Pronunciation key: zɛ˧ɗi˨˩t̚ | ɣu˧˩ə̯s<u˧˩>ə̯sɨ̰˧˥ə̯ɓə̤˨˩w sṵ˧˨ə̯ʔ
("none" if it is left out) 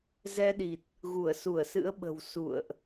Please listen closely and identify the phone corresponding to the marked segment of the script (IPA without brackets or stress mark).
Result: u˧˩